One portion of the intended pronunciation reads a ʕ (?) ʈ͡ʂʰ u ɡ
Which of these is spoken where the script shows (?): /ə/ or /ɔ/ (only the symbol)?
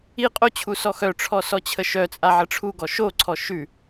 ə